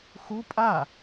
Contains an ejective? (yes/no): yes